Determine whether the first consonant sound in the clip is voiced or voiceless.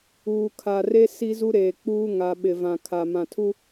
voiceless